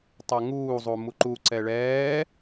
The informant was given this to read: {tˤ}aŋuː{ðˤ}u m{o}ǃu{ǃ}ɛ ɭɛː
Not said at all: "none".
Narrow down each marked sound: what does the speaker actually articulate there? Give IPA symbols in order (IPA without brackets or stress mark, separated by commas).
tˤ, zˤ, u, ǀ